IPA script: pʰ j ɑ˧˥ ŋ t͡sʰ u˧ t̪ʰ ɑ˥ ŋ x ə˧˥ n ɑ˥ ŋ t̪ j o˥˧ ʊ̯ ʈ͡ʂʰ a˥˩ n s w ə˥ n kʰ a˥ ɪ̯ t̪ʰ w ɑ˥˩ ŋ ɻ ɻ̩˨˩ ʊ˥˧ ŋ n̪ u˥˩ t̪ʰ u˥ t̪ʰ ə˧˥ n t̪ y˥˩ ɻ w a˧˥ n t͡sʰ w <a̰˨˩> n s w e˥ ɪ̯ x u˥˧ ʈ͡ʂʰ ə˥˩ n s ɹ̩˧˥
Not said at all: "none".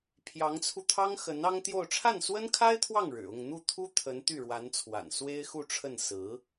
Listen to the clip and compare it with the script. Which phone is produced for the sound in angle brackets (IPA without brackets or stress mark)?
a̰˨˩